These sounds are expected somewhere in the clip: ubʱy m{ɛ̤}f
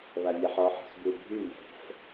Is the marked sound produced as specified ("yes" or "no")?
yes